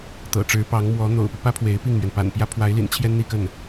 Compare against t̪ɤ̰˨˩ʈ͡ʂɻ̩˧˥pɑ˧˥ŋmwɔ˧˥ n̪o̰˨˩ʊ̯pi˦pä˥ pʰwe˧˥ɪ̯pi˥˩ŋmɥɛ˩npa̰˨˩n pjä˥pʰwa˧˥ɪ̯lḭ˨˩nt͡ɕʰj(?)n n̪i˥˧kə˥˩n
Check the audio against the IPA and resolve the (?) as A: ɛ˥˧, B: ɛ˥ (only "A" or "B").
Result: B